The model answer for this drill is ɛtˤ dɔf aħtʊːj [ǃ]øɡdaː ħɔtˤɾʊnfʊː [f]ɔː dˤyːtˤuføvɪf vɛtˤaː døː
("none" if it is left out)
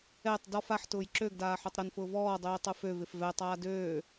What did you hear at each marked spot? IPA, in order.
ǁ, v

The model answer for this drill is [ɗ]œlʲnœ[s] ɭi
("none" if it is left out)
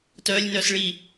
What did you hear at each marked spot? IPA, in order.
t, s

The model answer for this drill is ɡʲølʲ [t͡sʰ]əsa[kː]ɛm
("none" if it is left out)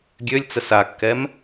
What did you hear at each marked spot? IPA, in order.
t͡s, kː

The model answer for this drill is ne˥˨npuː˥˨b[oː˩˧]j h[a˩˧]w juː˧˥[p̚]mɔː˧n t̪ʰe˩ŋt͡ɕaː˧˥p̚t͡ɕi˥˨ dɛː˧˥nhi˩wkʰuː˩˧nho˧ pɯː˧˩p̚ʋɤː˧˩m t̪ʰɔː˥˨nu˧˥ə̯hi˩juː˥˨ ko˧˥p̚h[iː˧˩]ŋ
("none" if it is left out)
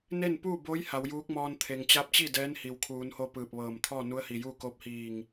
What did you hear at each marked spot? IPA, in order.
oː˧˥, a˩˧, k̚, iː˧˩

